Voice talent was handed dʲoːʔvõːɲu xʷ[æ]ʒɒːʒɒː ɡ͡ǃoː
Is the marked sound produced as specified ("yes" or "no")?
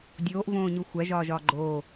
yes